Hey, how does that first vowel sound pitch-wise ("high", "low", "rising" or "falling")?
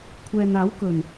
low